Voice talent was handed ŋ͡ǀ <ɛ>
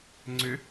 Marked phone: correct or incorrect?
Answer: incorrect